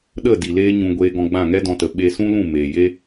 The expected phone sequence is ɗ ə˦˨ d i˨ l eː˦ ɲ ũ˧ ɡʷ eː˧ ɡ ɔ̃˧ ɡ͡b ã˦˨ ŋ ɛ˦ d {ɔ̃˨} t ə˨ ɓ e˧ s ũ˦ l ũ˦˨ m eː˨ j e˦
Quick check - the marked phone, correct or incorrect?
incorrect: ɔ̃˧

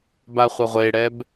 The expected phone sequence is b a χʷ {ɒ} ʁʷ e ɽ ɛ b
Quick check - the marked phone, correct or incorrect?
incorrect: ʌ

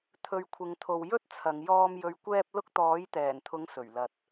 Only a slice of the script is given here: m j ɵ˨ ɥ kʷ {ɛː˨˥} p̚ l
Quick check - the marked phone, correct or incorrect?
incorrect: ɛː˧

